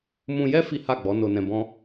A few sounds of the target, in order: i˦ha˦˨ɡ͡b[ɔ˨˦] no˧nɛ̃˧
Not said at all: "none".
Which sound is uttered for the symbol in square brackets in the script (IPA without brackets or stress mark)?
ɔ˨˦